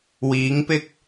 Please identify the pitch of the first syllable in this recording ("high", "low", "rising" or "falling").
rising